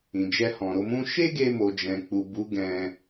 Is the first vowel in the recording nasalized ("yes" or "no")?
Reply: yes